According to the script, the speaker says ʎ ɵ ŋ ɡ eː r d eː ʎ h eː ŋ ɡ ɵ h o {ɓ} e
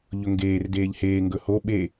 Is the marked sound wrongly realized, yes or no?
no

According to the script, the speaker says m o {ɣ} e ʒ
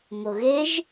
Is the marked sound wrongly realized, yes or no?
no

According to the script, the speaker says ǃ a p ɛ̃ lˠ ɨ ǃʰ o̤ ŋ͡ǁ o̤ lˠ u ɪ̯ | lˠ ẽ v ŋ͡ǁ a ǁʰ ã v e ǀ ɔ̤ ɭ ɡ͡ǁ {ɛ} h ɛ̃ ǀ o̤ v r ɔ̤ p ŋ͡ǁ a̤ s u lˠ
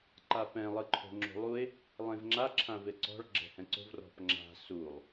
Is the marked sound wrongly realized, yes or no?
yes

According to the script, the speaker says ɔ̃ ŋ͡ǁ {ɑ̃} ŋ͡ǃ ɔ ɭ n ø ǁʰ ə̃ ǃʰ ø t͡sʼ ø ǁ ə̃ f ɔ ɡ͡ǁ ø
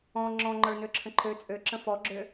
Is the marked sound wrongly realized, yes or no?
yes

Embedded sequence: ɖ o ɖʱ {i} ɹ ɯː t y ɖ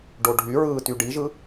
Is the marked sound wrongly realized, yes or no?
yes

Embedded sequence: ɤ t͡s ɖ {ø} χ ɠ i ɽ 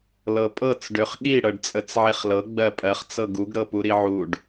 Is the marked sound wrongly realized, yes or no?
no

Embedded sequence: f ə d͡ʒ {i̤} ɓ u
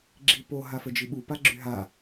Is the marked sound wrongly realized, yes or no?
yes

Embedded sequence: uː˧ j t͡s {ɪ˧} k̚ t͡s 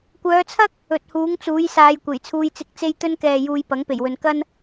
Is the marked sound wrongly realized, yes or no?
no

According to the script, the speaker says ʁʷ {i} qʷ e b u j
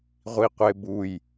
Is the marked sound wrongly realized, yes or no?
no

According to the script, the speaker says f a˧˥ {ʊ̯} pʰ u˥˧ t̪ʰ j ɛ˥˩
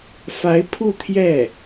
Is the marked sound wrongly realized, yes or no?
yes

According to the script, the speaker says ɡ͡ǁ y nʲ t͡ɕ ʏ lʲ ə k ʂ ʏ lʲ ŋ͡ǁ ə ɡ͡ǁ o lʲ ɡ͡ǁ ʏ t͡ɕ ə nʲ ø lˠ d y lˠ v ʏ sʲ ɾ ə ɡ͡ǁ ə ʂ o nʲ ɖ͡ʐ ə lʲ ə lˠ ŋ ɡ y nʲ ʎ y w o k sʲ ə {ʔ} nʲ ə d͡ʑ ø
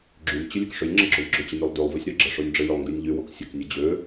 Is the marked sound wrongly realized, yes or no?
yes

